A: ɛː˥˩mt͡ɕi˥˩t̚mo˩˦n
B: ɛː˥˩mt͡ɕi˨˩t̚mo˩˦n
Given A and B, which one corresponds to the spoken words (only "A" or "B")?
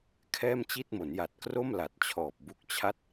A